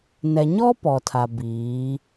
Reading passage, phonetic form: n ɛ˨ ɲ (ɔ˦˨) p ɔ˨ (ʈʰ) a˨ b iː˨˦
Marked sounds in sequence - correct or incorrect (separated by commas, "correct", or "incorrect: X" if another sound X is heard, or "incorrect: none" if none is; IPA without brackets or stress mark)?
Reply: incorrect: ɔ˦, incorrect: tʰ